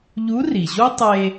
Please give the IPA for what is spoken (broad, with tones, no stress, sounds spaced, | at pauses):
ʎ u˧˥ r i˩ ʑ o˥ tˤ e˧